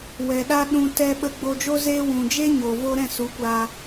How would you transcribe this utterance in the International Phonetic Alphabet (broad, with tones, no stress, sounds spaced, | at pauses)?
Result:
w ɛ˨ ɗ a˦ ɗ ũ˧ t ɛ˧ ɓ ə˧ ɡ͡b o˧ d͡ʒ o˦ z eː˦ w ũ˨ d͡ʒ e˦ ɲ oː˨ v o˧ ɾ ɛ̃˦˨ s u˨˦ kʷ aː˧